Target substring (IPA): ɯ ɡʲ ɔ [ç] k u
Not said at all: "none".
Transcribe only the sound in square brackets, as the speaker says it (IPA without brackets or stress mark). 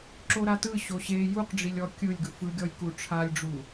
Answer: j